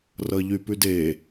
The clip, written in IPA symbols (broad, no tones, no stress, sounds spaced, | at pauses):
r ʌ ʎ y p ʉ d e